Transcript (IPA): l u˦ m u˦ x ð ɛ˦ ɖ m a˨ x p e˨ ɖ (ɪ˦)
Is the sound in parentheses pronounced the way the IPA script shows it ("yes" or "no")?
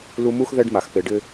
yes